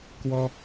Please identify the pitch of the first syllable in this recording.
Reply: high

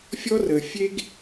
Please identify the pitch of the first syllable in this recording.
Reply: high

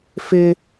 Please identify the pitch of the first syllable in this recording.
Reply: high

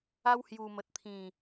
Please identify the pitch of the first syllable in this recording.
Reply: high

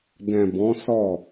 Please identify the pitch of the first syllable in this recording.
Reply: low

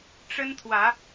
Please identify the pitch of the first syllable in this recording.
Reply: high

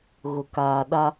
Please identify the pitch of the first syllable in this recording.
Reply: low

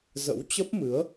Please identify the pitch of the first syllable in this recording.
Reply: rising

